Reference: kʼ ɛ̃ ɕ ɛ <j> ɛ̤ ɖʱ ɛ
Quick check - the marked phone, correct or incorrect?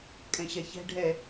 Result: incorrect